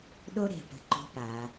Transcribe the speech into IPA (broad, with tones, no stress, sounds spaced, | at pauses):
ɗ o˥ ɾ e̤˧˩ p ə̤˧ ǃ o̤˥ p a˩˧